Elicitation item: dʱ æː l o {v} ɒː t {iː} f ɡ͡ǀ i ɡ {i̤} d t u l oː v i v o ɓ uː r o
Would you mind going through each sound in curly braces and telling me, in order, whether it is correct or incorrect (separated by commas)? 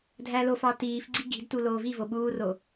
incorrect, correct, correct